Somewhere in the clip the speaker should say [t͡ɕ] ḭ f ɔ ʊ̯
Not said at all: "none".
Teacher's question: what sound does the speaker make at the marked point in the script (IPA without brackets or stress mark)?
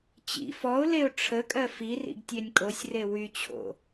t͡ɕ